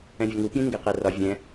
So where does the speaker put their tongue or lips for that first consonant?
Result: lips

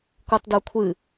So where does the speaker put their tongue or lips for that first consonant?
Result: velum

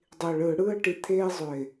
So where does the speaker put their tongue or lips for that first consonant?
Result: tongue tip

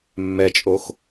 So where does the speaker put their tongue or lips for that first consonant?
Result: lips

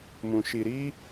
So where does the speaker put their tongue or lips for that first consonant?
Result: lips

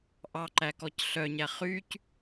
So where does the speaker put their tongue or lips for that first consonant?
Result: throat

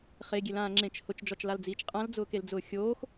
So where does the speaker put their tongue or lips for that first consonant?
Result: uvula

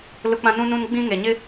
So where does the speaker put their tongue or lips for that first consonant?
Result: tongue tip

